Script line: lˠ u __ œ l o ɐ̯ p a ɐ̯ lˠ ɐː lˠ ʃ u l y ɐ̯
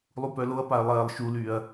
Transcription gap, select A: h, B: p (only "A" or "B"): B